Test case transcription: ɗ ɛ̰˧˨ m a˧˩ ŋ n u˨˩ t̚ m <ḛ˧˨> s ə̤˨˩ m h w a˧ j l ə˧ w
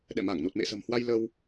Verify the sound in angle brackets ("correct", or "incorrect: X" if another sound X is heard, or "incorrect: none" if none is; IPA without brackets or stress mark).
correct